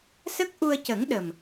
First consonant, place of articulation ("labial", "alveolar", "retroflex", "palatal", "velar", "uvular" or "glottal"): alveolar